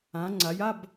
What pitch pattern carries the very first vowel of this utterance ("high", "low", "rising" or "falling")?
rising